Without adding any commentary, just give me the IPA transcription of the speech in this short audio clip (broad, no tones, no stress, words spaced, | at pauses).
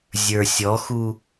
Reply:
zʲə˞sʲɔxu